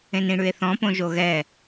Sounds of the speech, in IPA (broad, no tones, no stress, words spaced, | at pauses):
ẽnĩɽʉe̯θɔ̃ põʒoɣɛ